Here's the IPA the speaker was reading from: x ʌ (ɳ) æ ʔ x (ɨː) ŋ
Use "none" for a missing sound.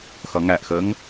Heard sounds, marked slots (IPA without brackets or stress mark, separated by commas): ŋ, əː